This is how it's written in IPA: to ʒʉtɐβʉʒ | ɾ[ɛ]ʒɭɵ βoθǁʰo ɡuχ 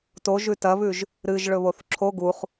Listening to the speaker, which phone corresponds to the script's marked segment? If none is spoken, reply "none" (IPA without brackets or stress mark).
ɨ